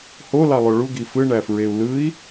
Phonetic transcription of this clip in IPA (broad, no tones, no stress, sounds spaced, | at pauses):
h o l ɑ lˠ o ɭ u ɡ i f ɯ ɳ æ f ɹ e u̯ l ɯ i̯